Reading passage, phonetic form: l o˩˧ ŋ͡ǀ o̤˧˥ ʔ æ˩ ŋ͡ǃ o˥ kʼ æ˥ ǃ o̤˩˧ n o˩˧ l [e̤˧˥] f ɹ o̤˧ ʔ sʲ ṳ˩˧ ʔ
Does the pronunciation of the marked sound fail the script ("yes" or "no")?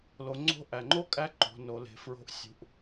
yes